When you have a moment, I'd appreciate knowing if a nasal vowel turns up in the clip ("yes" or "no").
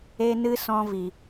yes